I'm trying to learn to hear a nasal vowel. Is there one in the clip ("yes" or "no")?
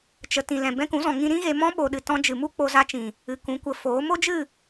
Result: yes